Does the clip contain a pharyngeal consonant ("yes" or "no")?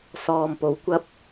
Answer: no